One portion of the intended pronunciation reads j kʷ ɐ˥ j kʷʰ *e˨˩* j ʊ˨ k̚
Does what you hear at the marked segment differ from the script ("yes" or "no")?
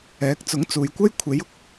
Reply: yes